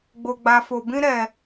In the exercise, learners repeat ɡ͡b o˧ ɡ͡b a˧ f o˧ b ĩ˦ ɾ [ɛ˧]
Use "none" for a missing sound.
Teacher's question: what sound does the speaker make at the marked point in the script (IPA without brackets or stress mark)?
ɛ˧